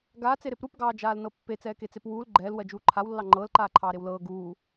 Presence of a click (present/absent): present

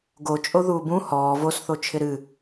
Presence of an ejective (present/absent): present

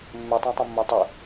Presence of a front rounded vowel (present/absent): present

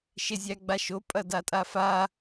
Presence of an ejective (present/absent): present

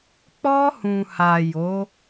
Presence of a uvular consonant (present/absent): absent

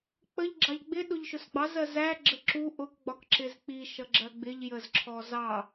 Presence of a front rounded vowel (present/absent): absent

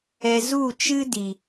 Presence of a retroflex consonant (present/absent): absent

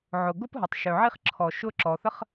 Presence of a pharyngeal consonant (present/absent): present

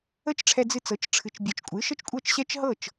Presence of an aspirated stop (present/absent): present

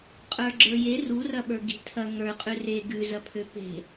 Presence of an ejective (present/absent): present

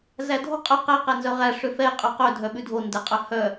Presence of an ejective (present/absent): present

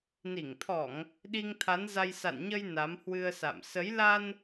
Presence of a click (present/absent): absent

